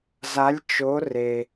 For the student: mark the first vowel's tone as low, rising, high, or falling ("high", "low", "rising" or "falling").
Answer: rising